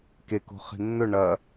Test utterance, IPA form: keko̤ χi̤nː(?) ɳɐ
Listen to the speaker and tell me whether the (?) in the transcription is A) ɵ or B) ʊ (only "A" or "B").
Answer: A